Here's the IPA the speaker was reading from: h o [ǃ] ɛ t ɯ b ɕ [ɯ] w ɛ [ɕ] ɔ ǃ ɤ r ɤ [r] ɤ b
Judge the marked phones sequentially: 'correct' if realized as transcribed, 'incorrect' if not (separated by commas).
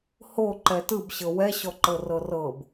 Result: correct, incorrect, correct, correct